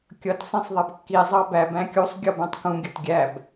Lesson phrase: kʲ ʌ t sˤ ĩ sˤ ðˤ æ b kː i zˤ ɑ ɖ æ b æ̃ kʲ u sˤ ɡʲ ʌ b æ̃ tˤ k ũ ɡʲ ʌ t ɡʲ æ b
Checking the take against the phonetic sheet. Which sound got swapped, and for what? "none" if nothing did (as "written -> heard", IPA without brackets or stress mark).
ɖ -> b